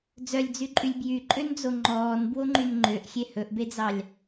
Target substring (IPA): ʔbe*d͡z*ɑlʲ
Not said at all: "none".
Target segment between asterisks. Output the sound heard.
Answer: d͡z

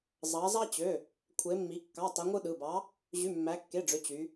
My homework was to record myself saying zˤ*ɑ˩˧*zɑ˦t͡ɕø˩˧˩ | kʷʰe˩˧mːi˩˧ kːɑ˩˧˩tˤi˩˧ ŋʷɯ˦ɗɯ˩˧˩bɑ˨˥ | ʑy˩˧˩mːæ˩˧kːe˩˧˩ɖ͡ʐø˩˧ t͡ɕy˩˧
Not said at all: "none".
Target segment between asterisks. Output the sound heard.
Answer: ɑ˩˧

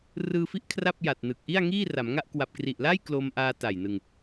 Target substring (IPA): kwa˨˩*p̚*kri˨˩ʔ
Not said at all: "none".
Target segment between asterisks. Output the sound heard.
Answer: p̚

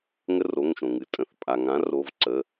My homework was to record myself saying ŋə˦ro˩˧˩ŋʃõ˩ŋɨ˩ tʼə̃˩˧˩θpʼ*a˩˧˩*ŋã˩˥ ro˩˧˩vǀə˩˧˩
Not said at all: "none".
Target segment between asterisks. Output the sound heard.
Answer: a˩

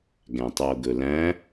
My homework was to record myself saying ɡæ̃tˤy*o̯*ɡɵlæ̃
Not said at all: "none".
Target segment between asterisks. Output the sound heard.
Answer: o̯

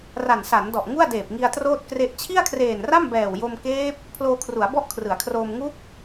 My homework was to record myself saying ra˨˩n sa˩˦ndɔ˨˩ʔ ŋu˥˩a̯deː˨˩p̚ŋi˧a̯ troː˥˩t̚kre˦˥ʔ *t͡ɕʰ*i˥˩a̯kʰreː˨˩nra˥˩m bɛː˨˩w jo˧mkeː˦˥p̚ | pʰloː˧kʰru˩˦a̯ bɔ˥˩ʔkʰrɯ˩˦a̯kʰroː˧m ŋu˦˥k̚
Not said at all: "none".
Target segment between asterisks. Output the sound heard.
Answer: t͡ɕʰ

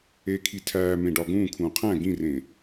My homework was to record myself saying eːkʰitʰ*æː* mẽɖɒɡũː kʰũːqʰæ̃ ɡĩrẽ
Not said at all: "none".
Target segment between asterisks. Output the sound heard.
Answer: æː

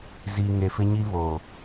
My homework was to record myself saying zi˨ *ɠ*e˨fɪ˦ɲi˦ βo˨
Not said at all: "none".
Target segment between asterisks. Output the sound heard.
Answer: ŋ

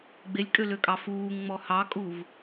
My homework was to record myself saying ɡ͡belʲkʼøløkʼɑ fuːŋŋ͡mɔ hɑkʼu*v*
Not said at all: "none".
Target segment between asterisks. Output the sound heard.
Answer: v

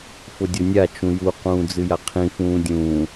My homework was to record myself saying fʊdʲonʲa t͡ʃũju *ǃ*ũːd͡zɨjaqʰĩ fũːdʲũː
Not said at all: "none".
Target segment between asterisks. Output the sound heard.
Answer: q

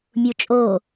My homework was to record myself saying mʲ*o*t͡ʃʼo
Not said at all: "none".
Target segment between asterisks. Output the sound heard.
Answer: u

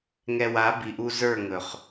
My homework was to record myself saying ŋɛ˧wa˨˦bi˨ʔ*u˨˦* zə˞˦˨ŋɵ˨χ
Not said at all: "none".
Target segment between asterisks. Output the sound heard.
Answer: u˧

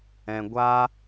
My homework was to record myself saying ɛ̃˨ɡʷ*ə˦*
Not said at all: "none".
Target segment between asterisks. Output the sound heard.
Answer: a˦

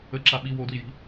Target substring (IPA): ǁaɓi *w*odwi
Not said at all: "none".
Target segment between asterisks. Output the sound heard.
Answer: w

